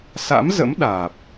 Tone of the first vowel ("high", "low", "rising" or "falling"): rising